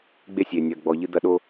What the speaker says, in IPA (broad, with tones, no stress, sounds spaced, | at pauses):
ɡ͡b e˦ sʲ eː˨ nʲ ɐː˨ ɡ͡b ɔ˨ ʎ ɨ˦ d̪ ɐ˦ ɗ o˦